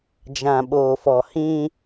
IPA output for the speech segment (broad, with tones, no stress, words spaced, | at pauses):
d͡ʒã˨ɓoː˨fɔ˨ hĩ˦